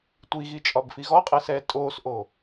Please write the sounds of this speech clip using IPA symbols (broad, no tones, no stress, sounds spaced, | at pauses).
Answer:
tʷ i ɣ i t͡ʃʼ ɒ b f i ɣ ɔ qʼ ɛ s ɛː tʼ oː s ʔ o